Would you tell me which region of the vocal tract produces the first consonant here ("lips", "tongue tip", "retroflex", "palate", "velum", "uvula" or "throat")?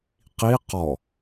uvula